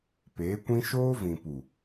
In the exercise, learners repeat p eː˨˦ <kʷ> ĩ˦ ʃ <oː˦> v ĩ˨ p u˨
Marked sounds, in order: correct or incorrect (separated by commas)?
correct, correct